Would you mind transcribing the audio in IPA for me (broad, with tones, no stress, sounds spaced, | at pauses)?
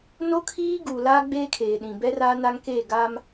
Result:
n o˦ kʰ iː˦ ɡ uː˨ l aː˦ ɡ͡b eː˦ kʰ eː˨ ɗ ĩ˨ b ɛ˦ r aː˦ n a˦ ŋ k eː˦˨ ɡ a˦ m